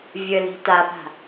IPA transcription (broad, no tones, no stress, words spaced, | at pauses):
vʲəli̤ tapa̤